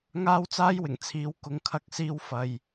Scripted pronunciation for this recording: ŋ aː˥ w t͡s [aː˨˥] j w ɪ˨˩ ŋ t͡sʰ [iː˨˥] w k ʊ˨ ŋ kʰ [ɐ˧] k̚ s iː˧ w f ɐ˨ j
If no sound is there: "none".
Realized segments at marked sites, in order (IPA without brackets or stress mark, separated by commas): aː˥, iː˨˥, ɐ˧